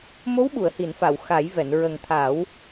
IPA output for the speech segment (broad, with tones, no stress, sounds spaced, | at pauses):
m o˧˥ w ɓ u˨˩˨ ə̯ h i˨˩˨ n f a˨˩˨ w x a˨˩˦ j v ɛ˨˩˨ n ɹ ə˨˩ ŋ t̪ʰ a˨˩˦ w